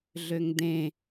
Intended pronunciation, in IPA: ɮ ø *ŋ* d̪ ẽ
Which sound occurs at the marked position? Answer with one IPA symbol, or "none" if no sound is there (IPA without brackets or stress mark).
ŋ